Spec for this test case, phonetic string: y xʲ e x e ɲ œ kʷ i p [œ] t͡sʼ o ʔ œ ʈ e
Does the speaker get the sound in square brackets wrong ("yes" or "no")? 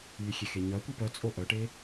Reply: no